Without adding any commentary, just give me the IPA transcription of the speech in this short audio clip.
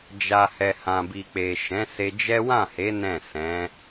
d͡ʒa˨hɛ˨ hã˨bi˨k͡pe˨ ʃɛ̃˨˦se˧d͡ʒɛ˦ wã˦˨he˨˦ nɛ̃˦˨sɛ̃˨˦

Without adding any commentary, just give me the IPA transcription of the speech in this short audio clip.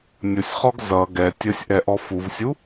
nʲʊsʲχɔɡ zʌ ɡɛ tʲəsʲʔɛ ʔɔfuvsʲu

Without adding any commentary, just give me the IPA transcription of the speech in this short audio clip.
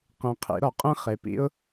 qẽ˨qʰḭ˨˩˦ ɾɔ˨qʼẽ˥χe˨pḭ˥ʊ̯

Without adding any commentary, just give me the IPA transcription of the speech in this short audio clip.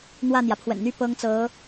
n̪wä˥˩n̪jä˩pʰwə̰˨˩nn̪y˥ pɤ˥ŋt͡sɤ˧˥

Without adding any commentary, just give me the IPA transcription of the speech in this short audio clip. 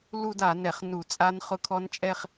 lu˥˧da˧˩˧nɛ˧˩˧χ nu˧˩˧t͡sʼa˦˥nχʊ˦˥kʰɔ˦˥n t͡ʃʼɛ˥˧χ

